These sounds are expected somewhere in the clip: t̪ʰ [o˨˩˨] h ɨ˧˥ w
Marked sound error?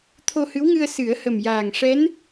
yes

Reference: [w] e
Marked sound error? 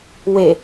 no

